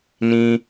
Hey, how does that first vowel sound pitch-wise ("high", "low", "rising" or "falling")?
high